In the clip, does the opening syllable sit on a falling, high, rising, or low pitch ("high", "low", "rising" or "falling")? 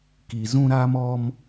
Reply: low